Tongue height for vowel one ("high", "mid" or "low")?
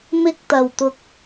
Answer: high